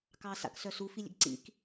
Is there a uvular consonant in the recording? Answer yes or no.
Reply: no